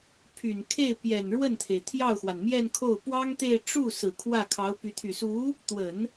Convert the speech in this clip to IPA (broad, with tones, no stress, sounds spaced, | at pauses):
pʰ y˨˩ n kʰ e˥˩ ɪ̯ p j ɛ˨˩ n ɻ w ə˥˩ n t̪ʰ e˩ ɪ̯ t̪ʰ j ɑ˥˩ ʊ̯ x w a˩ n m j ɛ˥˧ n kʰ o˥˩ ʊ̯ p w ɑ˥ ŋ t̪ e˥˧ ɪ̯ ʈ͡ʂ u˥˩ s ɹ̩˨˩ kʰ w ä˥˩ kʰ ɑ˧˥ ʊ̯ p y˧˥ t̪ʰ y˨˩ s u˧˥ | t̪ w ə˨˩˦ n